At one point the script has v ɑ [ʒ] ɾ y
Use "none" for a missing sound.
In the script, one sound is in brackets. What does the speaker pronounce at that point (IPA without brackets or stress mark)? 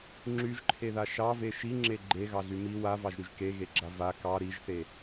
ʒ